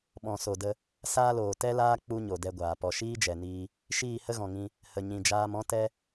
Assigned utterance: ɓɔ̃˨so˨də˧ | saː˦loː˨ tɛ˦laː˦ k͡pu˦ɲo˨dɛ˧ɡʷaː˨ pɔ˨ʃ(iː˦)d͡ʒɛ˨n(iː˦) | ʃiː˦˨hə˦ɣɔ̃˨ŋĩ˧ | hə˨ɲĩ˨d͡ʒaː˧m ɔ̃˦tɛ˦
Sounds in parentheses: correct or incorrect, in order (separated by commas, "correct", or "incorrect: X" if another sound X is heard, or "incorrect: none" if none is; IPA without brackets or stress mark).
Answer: correct, incorrect: iː˧